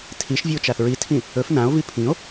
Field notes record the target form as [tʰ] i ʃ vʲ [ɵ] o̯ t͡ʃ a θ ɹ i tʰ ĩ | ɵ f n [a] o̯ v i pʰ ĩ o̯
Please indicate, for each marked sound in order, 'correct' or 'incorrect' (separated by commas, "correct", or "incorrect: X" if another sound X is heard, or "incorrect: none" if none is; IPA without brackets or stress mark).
correct, correct, incorrect: ã